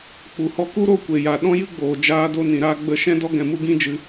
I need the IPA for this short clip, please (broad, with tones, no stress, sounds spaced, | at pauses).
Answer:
k͡p u˨ h ɔ˧ k u˦ ɾ o˦˨ kʷ e˨ j a˨ ɗ ɔ̃˦ j ɨ˦ ɡ͡b oː˨ d͡ʒ aː˧ d o˧ n ĩ˧ ɾ aː˦ ɡ͡b ə˦˨ ʃ ɛ̃˦ d ɔ˦ ɡ ɛ̃˧ m u˦ ɡ ĩ˦ d͡ʒ ɨ˧